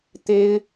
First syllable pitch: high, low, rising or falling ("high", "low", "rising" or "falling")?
high